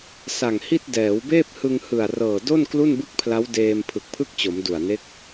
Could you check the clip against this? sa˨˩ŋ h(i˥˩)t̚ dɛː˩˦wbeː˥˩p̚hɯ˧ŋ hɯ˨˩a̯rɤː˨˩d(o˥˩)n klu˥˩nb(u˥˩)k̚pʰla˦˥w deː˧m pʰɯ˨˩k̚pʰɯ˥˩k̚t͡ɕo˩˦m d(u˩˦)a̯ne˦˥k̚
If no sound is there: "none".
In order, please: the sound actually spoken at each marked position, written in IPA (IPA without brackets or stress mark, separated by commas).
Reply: i˥˩, o˥˩, ɯ˥˩, u˨˩